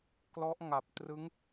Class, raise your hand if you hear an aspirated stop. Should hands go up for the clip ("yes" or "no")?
no